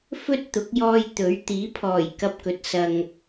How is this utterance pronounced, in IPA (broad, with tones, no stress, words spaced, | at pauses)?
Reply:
fɵ˥t̚t̪ʊ˨˥k̚jɔː˧j t̪ɵ˨˥ɥ t̪iː˨˥pʰɔː˨˩j kɐ˧p̚kɵ˨t̚ sɐ˧ŋ